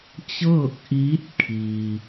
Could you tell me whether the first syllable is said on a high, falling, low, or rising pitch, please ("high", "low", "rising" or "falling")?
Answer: falling